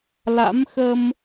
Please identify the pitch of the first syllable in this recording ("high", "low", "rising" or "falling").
rising